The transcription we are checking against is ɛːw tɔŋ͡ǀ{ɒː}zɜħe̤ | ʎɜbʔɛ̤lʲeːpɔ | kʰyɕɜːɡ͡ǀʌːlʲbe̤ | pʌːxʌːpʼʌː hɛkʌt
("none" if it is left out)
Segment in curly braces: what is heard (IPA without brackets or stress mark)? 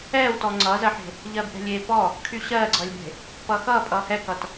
ʌː